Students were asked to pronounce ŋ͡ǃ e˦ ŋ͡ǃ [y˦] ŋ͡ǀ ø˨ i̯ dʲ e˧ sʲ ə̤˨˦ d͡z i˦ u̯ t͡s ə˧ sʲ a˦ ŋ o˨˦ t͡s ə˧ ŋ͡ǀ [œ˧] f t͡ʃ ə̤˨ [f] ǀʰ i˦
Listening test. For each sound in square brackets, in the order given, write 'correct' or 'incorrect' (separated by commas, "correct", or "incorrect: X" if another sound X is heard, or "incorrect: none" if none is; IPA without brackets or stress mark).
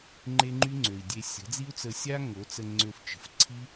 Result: correct, incorrect: ø˧, correct